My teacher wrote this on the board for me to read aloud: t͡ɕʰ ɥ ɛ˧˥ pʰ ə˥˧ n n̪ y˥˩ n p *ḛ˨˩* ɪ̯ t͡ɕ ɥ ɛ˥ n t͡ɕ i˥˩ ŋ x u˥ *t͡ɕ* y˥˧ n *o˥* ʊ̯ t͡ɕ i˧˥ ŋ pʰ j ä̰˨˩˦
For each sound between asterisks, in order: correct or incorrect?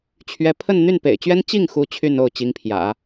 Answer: correct, incorrect: t͡ɕʰ, incorrect: o˥˩

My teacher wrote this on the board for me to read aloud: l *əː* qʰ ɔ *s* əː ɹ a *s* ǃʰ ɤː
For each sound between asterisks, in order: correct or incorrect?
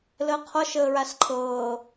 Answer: correct, incorrect: ʃ, correct

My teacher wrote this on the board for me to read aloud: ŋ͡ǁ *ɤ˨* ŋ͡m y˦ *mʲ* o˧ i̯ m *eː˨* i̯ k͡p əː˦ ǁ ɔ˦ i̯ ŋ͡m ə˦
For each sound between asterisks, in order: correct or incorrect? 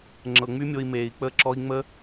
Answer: correct, correct, correct

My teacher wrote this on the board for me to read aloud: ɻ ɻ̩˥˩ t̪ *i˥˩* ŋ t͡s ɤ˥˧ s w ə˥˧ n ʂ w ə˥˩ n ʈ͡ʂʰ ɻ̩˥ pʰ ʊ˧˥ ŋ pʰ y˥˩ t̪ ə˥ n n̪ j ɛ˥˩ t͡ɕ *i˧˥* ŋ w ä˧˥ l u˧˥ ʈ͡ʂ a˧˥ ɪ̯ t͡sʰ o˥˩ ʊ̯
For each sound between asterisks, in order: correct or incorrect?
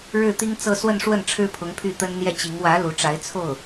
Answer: incorrect: i˥, correct

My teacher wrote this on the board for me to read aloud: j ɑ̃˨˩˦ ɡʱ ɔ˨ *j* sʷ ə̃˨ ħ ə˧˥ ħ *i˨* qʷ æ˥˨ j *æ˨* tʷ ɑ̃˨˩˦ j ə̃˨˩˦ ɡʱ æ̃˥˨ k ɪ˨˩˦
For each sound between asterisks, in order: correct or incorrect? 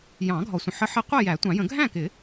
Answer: incorrect: none, incorrect: i˧˥, incorrect: æ˨˩˦

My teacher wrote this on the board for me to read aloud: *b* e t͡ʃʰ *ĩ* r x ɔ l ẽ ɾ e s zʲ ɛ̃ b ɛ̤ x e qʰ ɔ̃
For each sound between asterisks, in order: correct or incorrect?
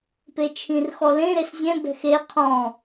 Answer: incorrect: p, correct

